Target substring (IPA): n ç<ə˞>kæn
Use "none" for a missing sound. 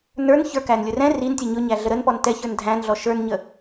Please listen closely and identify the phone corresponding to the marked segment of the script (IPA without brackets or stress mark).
ə˞